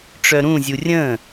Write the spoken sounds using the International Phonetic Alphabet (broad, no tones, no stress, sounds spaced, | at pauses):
ʈ͡ʂ œ ɾ ũ zʲ u rʲ ə̃